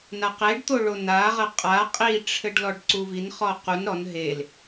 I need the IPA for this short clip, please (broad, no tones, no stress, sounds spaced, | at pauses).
n a q e ɖ t̪ o ɭ o n a ʁ ɐ qʼ a qʼ i ʈ͡ʂʰ ɘ ɖ l ɔ ɖ ǀ u v i n χ ɔ q u n ɾ ɔ n ɦ e l